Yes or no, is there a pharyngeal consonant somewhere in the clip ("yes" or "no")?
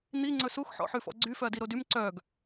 yes